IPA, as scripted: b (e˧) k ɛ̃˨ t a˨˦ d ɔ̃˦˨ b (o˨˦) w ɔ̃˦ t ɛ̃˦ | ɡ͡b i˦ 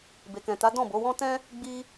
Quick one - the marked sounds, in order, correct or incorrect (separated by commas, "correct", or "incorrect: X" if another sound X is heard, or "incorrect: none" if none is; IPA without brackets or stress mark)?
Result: incorrect: e˨, correct